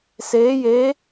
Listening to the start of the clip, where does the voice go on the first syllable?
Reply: rising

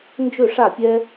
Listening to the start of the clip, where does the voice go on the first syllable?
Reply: falling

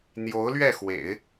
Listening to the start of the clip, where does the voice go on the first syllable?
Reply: rising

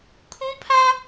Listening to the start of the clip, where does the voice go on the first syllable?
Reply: high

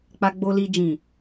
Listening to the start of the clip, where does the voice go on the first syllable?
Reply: low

